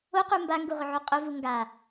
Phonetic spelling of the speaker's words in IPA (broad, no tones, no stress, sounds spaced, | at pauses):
o q u m b a ŋ ɡ u ʁ ʊ ʕ o qʼ ʊ v u ŋ ɡ a